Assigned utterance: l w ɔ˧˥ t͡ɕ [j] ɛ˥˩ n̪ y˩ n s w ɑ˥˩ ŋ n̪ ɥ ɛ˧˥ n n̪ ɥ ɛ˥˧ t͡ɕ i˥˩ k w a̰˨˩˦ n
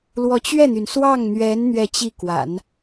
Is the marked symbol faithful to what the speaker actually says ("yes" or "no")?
no